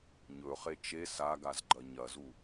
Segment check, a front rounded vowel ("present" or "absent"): absent